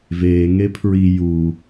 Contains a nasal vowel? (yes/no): no